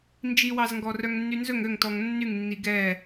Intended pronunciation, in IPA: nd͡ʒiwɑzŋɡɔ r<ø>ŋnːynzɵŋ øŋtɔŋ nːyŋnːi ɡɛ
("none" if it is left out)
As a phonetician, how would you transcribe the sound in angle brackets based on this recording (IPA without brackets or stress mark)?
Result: œ